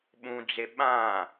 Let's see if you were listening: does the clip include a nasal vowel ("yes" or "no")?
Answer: yes